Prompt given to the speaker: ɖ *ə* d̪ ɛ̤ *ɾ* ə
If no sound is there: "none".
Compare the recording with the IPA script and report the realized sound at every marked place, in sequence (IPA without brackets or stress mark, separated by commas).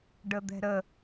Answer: ə, ɾ